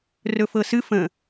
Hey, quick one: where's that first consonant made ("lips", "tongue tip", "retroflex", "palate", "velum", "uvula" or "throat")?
tongue tip